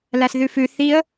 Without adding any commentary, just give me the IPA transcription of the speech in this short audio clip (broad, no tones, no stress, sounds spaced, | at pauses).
l æ s ð ʉ f ʉ θ i ə̯